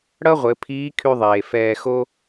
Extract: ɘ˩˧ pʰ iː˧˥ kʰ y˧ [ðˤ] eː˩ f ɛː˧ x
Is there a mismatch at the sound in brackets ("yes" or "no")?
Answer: no